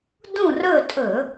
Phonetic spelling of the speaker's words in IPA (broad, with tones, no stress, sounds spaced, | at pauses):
d ũ˦˨ r ɵ˦˨ tʼ ɵ˧˩˧